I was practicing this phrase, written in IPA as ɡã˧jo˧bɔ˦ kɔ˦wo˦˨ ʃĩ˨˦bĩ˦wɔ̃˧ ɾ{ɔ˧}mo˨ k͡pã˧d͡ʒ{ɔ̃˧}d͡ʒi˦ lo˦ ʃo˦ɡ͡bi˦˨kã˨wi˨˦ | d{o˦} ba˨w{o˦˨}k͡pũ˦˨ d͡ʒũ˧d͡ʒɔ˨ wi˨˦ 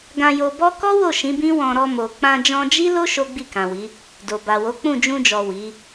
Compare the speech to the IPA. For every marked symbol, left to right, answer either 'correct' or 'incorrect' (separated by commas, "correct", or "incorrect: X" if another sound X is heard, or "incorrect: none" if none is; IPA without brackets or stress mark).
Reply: correct, correct, incorrect: o˨, incorrect: o˨˦